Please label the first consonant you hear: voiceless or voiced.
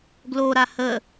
voiced